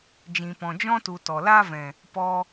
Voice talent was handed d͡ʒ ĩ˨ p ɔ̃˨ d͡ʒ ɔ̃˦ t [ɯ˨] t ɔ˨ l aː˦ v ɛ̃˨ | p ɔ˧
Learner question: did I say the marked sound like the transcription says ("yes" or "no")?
no